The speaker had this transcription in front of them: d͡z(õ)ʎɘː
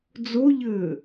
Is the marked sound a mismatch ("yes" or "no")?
yes